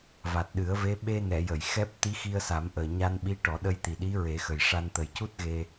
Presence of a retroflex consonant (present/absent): present